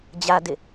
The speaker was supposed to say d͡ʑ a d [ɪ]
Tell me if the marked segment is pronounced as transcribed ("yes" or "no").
yes